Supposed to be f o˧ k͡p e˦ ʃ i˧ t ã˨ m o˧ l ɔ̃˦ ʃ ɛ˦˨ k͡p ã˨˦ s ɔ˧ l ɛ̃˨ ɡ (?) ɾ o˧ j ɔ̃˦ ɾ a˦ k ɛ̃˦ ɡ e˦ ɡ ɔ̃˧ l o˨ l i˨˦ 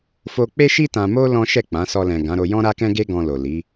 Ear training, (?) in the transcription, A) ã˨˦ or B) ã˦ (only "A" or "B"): A